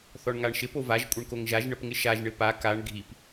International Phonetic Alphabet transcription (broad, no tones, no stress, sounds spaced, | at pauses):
θ ɔ ɳ ŋ a ɳ ʃ ɪ p o v a ʒ kʷʼ ə ɳ k o ŋ ʒ a ʒ ɳ ə p ŋ ɪ ʃ a ʒ ɳ ɪ p a k a ɳ ɡʱ i p